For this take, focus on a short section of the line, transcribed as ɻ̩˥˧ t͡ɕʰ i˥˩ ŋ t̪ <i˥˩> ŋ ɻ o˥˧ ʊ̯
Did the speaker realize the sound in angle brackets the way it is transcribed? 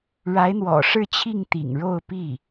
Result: no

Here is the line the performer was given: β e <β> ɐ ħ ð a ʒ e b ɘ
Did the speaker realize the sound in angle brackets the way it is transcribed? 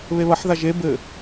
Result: yes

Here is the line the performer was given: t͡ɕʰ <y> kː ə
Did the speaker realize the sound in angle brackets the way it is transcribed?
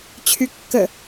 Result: yes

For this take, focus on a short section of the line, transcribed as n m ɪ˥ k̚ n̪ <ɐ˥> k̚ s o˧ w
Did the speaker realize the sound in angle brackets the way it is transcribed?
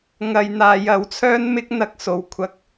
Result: yes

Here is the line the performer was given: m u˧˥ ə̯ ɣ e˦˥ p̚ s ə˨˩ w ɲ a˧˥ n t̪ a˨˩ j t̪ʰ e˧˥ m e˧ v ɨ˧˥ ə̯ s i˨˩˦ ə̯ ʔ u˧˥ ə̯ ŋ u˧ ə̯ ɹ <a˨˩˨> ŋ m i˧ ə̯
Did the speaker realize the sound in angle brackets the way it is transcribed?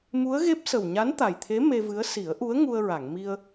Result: yes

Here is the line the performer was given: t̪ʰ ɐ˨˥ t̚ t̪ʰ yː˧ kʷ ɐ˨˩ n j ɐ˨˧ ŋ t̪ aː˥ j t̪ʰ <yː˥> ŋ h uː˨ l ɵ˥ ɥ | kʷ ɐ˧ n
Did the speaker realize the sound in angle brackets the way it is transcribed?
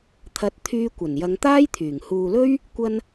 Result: no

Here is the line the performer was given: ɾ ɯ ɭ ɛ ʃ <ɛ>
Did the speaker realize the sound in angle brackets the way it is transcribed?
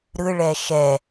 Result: yes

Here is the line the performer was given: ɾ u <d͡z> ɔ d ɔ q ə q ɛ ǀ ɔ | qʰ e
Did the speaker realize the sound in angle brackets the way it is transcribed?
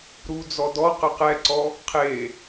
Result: yes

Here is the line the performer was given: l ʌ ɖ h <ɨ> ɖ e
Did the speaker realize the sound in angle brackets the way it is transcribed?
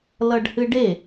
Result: yes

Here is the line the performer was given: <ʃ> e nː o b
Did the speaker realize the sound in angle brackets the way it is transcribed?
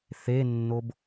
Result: no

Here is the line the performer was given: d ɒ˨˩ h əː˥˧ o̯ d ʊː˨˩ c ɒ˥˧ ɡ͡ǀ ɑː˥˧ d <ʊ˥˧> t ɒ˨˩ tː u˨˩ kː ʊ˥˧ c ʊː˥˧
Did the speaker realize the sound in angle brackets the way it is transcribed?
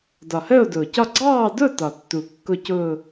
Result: yes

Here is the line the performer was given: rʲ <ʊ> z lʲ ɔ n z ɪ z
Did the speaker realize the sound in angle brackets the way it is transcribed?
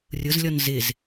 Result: yes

